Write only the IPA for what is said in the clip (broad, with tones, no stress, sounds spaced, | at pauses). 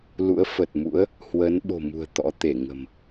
l ṵ˧˥ ə̯ f ə˨˩ t̚ m ṵ˧˥ ə̯ | h w ə˨˦ n ɓ o̤˨˩ m ṳ˨˩ ə̯ t̪ ɔ̰˧˥ t̪ e˧˩ ŋ ə̤˨˩ m